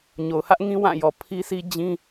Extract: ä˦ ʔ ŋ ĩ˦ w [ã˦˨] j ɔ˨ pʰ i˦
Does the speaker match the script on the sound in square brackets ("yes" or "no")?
yes